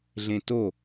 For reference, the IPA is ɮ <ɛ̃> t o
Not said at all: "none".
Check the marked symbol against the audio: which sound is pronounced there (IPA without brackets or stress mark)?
ẽ